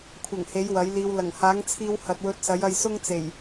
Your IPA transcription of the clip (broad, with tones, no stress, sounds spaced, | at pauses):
kʷʰ ɐ˨˩ ŋ h e˨˥ j w ɐ˨˥ j l iː˧ w l ɐ˨˩ ŋ h aː˨˥ ŋ t͡sʰ iː˧ w h ɐ˨ t̚ w ɵ˧ t̚ s ɐ˨˥ j ɐ˧ j s ʊ˥ ŋ t͡s e˨˩ j